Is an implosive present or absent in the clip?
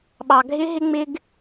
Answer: present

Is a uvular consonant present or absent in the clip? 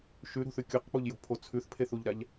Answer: present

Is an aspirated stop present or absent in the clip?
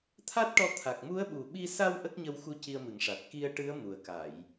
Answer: present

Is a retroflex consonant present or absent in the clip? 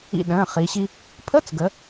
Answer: absent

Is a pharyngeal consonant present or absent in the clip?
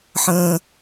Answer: present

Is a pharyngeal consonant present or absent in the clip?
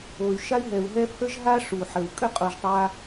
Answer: present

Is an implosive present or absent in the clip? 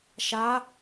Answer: absent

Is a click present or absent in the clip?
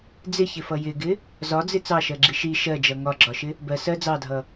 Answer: present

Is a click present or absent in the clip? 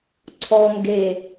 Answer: present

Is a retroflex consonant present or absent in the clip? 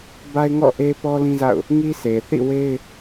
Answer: absent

